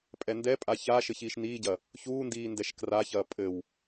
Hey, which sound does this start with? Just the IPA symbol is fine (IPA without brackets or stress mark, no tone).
pʼ